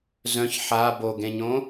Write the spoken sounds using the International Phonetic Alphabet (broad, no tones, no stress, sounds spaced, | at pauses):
z œ̃ ç ħ a b o ɡ ẽ ɲ õ